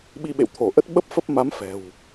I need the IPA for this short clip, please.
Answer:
ɓi˧ɓḛ˧˨wt̪ʰo˧˩ʔə˦˥t̚ ɓə˦˥p̚fə˦˥p̚ma˨˦m fɛ̤˨˩w

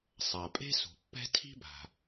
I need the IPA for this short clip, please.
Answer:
sˤa˩pʼe̤˥ sṳ˩pːɛ̤˥ tʰi̤˥ba̤˩

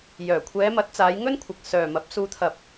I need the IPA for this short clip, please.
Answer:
jœː˨˩ kʷʰɛː˨˧mɐ˨˥t̚t͡saː˨˧jŋɵ˥n kʷʰɐ˨k̚sœː˨mɐ˨˥p̚suː˧ t̪ʰɐ˧p̚

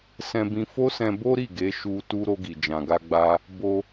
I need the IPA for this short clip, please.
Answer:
sɛ̃˧bĩ˧ fo˦sɛ̃˧bo˦ɾi˦˨ ɡe˨˦ʃu˧ tu˧ ɾo˧ɡi˨d͡ʒã˨ɡa˧ ɡ͡ba˧ | bo˧

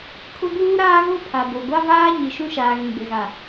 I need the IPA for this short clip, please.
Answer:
kʰʊ˦ɡuː˦ɾaː˦ɣo˦ pʰa˨bo˨ɡʷa˦vaː˦ ɲi˨ʃũ˦ʃaː˨ ɣĩ˨ɡ͡bɪ˨ɣa˨

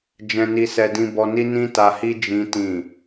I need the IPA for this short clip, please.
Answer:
d͡ʒɛ̃˧ni˧sɛ˧ dĩ˧bɔ˧ni˦ nĩ˦ta˧hi˦ d͡ʒĩ˦tĩ˦˨

